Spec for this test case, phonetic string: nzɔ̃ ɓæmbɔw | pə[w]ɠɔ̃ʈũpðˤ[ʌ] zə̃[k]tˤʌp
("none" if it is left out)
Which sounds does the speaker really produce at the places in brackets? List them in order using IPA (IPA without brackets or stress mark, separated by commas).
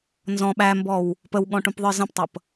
w, ə˞, p